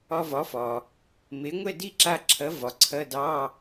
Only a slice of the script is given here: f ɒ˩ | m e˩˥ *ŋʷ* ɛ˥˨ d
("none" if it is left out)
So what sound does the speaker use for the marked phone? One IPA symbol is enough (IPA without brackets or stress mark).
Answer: ŋʷ